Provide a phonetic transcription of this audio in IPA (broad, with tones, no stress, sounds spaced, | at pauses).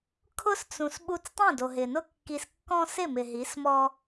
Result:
kʰ ʊ˦ s t͡s ũ˨ s ɓ u˧ t͡s tˤ ẽ˦˨ d o˨ ɦ ɪ˨ n ʊ˦ kː i˧ s kː ɔ̃˦ s ɪ˦˨ m ɪ˨ ɦ i˨˦ s m ɔ˦